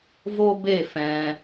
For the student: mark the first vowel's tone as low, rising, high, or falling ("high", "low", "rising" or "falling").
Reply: high